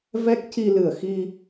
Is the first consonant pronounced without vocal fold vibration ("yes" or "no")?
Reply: no